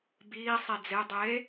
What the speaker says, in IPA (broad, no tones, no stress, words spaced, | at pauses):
biː sˤid͡ze dˤe